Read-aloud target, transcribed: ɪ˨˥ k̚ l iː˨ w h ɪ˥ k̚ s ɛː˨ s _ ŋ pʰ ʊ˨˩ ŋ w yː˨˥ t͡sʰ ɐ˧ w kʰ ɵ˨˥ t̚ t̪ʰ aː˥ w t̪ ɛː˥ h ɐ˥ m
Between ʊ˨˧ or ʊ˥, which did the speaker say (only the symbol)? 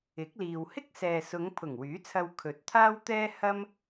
ʊ˨˧